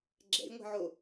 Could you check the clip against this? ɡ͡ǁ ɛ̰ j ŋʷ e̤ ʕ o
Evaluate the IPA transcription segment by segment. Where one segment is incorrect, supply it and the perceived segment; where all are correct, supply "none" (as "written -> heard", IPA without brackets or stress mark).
none